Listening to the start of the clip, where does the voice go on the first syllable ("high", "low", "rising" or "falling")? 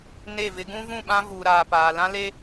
falling